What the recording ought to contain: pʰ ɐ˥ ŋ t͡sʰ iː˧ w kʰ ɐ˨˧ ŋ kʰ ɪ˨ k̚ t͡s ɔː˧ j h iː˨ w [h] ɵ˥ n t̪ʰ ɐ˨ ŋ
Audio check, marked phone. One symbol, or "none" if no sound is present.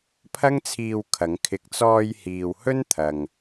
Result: h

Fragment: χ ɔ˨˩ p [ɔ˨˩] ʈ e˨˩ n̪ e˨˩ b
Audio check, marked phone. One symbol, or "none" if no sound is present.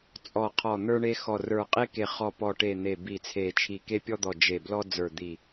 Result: ɔ˨˩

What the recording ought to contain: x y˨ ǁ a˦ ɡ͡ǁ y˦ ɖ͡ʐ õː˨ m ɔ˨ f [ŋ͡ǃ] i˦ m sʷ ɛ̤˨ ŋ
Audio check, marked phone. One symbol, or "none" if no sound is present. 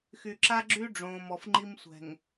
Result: ŋ͡ǃ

